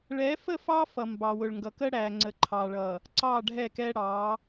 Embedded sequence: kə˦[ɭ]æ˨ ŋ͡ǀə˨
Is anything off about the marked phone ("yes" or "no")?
yes